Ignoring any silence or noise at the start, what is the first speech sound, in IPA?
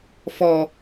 f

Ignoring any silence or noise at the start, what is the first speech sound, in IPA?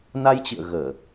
n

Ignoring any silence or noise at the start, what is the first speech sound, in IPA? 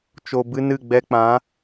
t͡ʃ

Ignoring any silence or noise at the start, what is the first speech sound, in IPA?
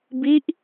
b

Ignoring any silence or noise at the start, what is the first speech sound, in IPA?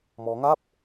m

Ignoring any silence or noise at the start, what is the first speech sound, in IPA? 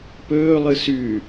p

